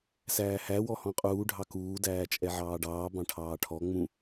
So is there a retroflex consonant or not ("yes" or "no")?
yes